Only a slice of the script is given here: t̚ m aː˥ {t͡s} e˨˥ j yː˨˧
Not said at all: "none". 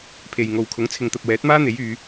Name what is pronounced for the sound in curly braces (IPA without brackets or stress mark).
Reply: n̪